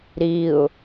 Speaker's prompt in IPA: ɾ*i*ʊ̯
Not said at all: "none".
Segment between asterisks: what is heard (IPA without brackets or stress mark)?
i